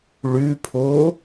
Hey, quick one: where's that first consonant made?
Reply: retroflex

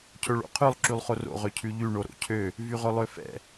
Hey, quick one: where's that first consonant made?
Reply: palate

